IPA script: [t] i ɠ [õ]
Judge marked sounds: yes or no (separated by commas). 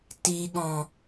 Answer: yes, no